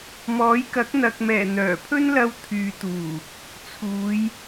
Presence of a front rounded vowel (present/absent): present